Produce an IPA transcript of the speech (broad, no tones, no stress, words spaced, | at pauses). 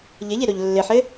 ʎɘʎe ɾoʎlːɘħɘ